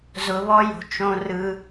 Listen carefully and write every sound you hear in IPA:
zʊ˧βɔ˦jo̤˧ t͡ʃõ˧rɯ˧

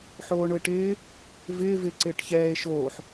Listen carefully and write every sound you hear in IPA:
ħoːɳʊe̯ʈɪː | vɪː vɪ ǀɪːʈçɛːe̯ ʃoːħ

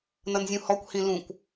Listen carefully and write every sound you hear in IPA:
nʌnzʲũhɔkʷ hĩlũkʷ

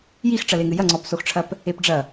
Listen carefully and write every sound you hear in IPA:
jix ʈ͡ʂɐleŋɨjɐ ŋ͡ǀɔpsoxʈ͡ʂʰɐp | epɖ͡ʐɐ

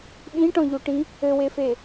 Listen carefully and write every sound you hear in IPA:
ɓĩʈɔ̃ʎuʈĩ | ɘwefe

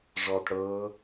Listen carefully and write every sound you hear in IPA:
ʐɔːtɽɤː

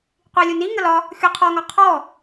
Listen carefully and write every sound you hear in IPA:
qʷilʲuni ŋəlɒ | xʲoqʰɔ ŋɒqʰɔ

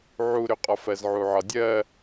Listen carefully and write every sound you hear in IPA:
ʕuɾʏqʼɒf ɜzʕuʕɒdʲɜ

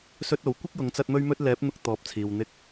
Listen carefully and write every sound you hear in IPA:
sɵ˥t̚o˨˥w kʷɪ˥k̚jʊ˨˧ŋt͡sɐ˧t̚ mɵ˥ɥmɵ˥t̚ lɛː˨˥p̚n̪ʊ˧k̚ t̪ɔː˨˥p̚t͡sʰiː˨w n̪ɪ˧k̚

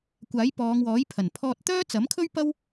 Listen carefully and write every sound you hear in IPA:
kʷaː˨˥jpɔː˨˧ŋwɔː˨˥j pʰɐ˨˩npʰɔː˧t̚ t̪œː˥t͡sɐ˨˥mkʰɵ˥ɥ pɐ˥w

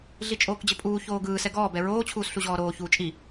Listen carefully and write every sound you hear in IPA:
ɮit͡ʃʼoːkd͡ʑɘpʼuː çoːɡɯː sɛɡɔː bɛɹoː t͡ɕʰuːsɬuʑɔːɾoː çuːt͡ʃʼi

